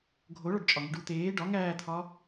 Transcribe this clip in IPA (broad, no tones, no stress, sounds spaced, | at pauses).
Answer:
ɡʱ o ɭ ɒ ɖ t͡ʃʼ ɒ ŋ i ɖ u t̪ eː ɖ ɒ ŋ æː t̪ʰ ɒ